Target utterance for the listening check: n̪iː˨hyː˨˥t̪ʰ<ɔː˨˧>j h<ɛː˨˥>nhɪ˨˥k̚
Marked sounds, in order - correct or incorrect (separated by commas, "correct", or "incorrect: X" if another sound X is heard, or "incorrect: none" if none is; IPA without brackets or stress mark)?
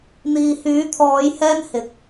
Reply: correct, incorrect: ɛː˥